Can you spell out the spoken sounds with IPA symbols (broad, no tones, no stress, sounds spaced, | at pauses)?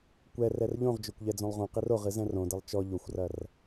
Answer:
kʷ ɛ r ɛ r ʎ õ ʁ d͡ʒ o kʷ ʎ ɛ d͡z õ lˠ ʁ õ q i r o ʁ ɨ z ɛ̃ r õ d ɘ lˠ t͡ʃ ɔ ʎ o xʷ r ɐ r